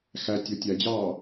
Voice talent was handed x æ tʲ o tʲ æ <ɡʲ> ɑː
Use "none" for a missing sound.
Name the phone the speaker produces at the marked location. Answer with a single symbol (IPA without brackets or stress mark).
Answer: d͡ʑ